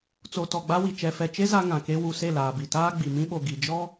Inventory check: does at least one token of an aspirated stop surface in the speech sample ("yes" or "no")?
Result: no